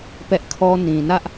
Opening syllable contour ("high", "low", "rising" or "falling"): high